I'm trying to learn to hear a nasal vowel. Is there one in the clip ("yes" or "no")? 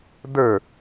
no